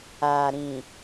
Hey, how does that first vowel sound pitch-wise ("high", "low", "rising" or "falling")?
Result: low